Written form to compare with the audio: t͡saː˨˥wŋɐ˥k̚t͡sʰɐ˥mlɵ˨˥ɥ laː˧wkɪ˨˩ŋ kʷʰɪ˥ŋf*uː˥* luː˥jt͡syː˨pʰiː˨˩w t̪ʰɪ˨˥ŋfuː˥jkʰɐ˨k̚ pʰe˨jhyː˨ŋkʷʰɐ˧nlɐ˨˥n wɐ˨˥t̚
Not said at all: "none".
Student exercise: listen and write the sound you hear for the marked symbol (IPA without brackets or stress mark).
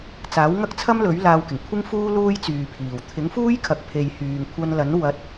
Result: uː˥